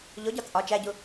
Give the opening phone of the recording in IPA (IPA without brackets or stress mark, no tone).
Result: ʎ